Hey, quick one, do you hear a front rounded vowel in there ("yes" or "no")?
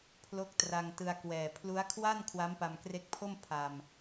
no